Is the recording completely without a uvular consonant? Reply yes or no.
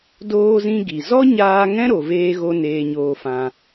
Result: yes